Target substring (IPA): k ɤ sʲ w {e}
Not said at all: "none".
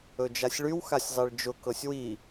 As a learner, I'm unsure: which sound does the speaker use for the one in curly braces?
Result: i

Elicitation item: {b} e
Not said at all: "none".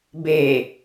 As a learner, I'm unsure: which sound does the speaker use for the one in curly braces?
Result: b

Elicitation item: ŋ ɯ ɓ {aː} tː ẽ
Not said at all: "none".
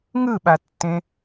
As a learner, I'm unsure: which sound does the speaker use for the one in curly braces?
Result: a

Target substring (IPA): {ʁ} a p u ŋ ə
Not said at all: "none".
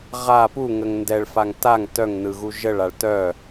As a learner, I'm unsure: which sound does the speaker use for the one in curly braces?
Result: ʁ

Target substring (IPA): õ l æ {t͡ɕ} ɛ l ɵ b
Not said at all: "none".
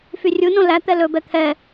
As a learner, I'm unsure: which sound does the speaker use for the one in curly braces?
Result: t̪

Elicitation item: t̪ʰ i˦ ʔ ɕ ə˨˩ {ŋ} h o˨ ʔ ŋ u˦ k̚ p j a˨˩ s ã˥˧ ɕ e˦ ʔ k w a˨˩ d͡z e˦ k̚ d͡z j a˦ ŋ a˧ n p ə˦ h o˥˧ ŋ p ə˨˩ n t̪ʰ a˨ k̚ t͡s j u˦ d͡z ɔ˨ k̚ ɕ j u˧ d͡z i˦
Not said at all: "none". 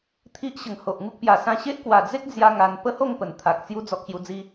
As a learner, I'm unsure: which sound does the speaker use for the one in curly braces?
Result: ŋ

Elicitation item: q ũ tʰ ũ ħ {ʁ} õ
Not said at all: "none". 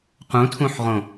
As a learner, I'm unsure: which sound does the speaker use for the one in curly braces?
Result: ʁ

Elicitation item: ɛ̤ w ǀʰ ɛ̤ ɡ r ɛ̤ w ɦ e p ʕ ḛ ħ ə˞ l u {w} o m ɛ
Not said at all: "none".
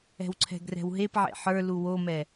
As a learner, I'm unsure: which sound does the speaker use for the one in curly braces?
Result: w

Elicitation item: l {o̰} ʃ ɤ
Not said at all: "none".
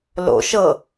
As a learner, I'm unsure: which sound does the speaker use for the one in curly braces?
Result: o̰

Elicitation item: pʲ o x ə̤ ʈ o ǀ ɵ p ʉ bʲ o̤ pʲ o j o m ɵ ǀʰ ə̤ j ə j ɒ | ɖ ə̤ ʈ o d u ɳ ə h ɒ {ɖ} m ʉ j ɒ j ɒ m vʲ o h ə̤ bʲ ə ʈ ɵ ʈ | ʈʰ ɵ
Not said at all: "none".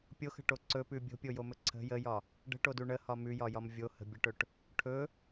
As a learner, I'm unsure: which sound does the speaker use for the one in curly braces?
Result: none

